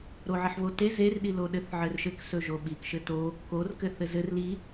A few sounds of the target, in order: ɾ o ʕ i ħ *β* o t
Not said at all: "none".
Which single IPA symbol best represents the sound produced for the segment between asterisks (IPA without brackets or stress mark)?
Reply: β